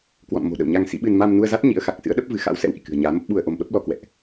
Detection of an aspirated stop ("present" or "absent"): absent